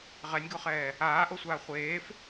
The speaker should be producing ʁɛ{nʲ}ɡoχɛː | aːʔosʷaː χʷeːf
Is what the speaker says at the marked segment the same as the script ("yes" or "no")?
yes